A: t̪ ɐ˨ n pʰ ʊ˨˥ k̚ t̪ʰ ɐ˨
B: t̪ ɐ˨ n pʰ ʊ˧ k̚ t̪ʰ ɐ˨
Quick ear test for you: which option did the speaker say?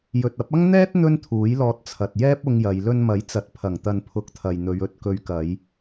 A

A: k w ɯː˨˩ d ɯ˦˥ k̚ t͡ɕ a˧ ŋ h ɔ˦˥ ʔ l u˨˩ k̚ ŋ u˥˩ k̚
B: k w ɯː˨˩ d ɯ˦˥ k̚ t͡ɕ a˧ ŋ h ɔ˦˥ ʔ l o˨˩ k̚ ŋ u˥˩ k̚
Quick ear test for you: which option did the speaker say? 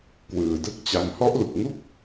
A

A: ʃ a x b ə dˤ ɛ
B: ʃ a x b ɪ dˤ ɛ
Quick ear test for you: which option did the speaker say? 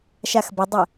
A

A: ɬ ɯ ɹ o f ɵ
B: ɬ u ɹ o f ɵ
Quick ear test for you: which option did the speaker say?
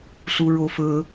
B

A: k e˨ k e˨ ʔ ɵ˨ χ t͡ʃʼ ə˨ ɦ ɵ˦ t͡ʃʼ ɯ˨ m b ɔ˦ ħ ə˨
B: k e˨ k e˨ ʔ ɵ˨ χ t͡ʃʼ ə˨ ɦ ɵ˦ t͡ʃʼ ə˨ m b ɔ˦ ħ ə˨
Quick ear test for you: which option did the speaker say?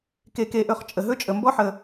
B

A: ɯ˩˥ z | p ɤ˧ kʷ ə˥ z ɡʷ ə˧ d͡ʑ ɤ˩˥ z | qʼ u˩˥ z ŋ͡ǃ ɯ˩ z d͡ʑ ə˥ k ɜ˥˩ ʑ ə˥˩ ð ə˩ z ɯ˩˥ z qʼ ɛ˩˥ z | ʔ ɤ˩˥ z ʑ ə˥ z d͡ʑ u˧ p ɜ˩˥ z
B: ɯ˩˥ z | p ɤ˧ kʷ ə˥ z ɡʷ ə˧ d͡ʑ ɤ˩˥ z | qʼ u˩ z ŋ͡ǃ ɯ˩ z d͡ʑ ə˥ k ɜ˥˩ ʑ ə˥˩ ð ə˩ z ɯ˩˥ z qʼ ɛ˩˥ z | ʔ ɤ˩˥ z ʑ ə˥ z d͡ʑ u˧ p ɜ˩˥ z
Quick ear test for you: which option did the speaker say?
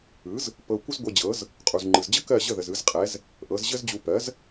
B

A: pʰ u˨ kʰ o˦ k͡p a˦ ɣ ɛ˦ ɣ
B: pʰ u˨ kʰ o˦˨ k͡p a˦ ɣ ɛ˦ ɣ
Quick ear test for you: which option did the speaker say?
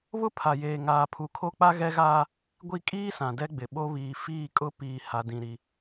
A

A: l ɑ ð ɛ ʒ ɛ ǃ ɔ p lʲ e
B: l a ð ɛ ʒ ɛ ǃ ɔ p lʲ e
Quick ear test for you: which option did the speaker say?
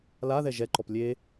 B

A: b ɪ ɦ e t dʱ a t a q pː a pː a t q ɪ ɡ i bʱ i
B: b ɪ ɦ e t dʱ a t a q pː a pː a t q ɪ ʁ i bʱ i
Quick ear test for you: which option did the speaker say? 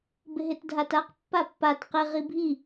B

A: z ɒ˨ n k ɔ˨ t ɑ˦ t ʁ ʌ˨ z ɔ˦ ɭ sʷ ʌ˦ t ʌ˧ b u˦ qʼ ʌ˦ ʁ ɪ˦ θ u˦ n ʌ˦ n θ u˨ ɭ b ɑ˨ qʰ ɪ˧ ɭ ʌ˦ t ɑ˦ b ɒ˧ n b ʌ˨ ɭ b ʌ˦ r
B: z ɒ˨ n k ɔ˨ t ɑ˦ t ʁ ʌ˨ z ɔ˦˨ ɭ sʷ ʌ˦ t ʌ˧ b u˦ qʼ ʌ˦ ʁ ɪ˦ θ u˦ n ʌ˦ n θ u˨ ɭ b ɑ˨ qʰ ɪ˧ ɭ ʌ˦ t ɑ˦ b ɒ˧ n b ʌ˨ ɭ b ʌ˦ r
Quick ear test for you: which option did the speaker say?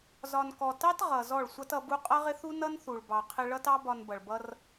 B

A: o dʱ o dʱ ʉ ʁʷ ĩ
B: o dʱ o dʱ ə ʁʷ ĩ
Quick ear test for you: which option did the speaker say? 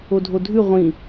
A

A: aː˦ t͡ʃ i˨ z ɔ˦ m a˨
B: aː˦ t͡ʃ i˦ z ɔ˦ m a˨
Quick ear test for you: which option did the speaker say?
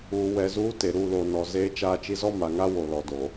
B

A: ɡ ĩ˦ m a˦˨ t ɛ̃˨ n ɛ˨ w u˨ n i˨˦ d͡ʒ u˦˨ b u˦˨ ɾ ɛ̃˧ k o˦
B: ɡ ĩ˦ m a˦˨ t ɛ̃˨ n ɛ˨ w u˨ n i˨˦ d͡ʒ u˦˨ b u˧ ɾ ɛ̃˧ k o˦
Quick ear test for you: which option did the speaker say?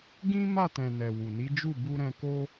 B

